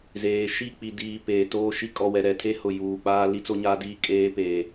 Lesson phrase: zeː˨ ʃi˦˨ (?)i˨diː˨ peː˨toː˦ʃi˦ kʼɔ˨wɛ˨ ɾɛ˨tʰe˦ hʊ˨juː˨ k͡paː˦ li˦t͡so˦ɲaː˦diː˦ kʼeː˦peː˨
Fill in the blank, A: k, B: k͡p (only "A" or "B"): B